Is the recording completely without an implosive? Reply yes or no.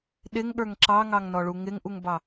no